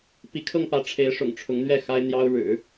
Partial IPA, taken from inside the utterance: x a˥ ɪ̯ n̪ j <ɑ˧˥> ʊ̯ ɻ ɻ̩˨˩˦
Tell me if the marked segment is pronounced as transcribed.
no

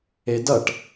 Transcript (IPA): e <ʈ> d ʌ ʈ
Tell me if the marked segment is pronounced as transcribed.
no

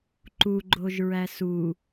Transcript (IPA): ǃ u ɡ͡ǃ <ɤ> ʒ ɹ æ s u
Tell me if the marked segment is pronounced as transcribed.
no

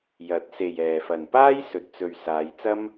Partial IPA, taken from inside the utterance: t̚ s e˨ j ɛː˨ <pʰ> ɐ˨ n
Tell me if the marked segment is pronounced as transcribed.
no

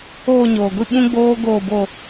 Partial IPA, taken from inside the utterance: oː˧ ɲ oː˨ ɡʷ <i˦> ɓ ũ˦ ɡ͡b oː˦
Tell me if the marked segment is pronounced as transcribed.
no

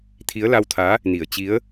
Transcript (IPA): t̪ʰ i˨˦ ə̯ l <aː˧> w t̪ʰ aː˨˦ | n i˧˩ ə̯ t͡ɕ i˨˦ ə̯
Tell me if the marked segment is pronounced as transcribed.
no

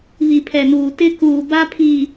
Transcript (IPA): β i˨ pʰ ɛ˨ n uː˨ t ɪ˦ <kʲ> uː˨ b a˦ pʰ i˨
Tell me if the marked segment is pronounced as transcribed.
no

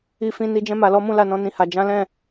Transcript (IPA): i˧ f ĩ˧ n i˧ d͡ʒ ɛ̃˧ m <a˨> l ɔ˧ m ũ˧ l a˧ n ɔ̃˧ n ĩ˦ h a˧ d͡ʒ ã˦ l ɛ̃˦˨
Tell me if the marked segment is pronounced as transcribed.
yes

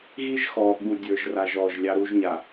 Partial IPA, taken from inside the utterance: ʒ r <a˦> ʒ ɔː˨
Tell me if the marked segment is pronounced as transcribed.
no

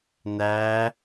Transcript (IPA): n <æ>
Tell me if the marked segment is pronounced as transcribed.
yes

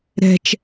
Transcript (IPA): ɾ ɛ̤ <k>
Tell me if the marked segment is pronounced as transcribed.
no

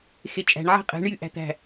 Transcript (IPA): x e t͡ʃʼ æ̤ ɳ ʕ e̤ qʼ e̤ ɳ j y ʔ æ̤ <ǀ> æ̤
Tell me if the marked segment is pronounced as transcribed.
no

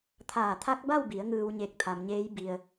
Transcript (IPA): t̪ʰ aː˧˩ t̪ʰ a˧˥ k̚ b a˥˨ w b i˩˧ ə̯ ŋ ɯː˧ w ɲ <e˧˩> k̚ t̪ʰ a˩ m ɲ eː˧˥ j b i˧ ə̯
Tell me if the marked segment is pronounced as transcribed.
yes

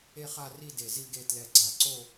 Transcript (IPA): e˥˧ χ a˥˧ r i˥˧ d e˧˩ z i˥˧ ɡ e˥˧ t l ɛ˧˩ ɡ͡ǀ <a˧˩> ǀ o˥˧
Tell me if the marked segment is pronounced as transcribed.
yes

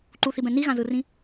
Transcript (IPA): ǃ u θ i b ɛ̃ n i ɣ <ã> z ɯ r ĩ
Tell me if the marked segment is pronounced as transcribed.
yes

